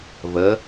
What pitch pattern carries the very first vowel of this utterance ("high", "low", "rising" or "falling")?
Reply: rising